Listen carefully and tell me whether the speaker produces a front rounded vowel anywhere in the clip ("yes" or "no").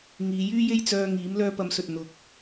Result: yes